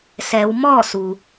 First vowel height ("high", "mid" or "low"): mid